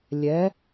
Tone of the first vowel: rising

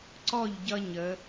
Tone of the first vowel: falling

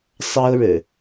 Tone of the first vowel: high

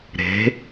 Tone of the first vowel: rising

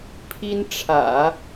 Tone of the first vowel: high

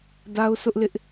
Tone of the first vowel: high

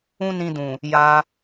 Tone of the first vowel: high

